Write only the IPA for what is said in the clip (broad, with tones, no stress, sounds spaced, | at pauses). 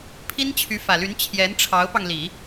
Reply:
pʰ i˥ n t͡ɕʰ y˧˥ f ä˨˩ l y˧˥ n t͡ɕʰ j ɛ˧˥ n ʈ͡ʂʰ ɑ˧˥ ʊ̯ p ɑ˧ ŋ l i˨˩˦